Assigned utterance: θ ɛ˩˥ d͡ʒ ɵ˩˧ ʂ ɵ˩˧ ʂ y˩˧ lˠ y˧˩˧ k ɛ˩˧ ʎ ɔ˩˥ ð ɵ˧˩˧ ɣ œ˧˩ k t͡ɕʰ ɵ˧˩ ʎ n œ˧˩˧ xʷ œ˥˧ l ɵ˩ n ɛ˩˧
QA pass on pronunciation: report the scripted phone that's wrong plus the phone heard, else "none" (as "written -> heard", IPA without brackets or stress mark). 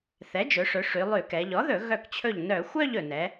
l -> ʎ